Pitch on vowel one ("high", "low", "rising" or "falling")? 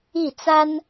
falling